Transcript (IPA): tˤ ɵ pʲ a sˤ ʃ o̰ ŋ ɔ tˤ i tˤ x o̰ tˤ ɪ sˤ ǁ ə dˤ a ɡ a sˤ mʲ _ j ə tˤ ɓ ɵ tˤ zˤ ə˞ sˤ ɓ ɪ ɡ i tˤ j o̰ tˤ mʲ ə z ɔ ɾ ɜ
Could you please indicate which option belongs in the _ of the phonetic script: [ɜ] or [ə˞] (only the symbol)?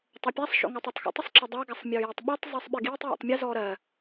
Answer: ə˞